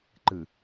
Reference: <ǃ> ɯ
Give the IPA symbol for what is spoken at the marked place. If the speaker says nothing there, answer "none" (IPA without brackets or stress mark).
ǃ